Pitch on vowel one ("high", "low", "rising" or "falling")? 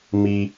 high